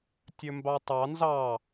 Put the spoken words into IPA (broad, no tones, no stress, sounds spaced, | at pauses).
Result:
tʲ ɵ m b ɑ tˤ ɑ n z ɑ